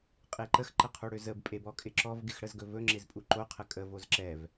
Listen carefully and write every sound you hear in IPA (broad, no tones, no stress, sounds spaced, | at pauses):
qʼ e ǃ ə x ǃ ə qʰ u ɽ ø z ə b pʼ e b ɔ kʼ ɪ ǁ ɔ v ɡ ɪ x ɽ ə z ɡ ɵ v ɵ ŋ͡ǁ ɪ z pʼ u ǃ o qʰ ə kʼ ə v o z ǁ ɛ v